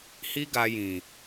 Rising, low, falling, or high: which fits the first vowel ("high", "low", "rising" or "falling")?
high